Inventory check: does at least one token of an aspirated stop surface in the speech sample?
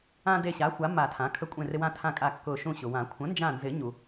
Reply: yes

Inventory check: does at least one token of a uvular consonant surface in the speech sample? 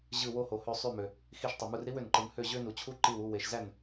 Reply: no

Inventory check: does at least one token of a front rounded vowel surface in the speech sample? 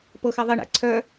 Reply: yes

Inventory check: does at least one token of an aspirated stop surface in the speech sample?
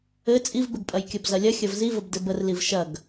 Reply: no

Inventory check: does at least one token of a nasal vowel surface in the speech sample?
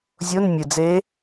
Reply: no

